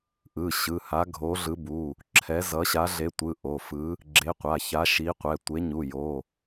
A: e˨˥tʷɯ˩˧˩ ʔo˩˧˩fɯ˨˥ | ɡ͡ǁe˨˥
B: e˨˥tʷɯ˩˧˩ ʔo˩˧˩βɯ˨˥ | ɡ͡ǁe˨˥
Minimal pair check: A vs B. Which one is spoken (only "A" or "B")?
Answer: A